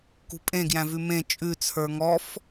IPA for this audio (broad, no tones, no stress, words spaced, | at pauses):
kṳpʼẽɡjæ̃vʉ mẽ t͡ʃʼʉt͡sʰə˞ ŋɔf